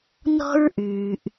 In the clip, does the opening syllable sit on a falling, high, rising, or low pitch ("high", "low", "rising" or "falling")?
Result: high